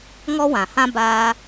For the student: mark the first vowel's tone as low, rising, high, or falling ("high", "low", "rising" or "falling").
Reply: high